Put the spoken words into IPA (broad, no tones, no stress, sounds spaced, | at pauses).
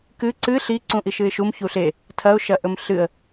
k ɨ ǀ ɨ ɬ i ǀ ũ ʔ i ʃ ɨ ɪ̯ ʃ u m ç u ɬ e | tʰ ɐ ʊ̯ ʃ ɐ ʔ ɵ m ɬ ɨ ə̯